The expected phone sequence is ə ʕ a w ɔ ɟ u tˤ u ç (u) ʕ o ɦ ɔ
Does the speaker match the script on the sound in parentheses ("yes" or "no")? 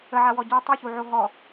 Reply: yes